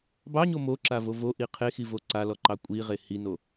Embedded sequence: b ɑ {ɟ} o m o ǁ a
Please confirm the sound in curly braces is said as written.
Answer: no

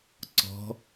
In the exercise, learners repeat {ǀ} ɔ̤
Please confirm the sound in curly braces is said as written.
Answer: yes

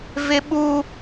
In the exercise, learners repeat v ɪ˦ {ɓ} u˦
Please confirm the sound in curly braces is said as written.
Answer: yes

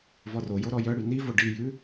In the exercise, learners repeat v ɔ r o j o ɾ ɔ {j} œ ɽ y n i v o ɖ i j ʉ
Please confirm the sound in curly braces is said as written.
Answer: yes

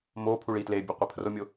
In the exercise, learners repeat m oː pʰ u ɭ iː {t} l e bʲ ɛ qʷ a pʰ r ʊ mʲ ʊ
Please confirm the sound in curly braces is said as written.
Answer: yes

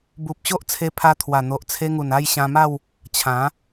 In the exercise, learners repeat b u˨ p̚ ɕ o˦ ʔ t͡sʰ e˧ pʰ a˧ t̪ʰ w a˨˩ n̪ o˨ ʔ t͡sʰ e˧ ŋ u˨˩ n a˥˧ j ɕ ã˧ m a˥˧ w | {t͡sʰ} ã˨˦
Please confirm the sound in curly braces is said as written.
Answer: no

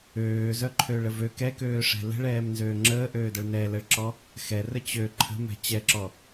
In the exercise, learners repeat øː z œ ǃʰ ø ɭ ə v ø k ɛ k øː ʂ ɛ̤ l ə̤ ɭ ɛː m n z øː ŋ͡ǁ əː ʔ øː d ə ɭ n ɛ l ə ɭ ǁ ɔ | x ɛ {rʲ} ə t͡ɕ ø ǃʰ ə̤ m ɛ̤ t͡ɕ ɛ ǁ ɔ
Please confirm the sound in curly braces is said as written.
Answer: no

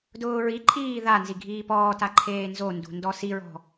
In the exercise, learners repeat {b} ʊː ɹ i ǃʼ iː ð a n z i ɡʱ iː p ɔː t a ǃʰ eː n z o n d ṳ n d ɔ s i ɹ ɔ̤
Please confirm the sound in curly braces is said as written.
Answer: no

